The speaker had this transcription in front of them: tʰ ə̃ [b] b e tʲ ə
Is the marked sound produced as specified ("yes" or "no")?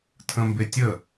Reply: no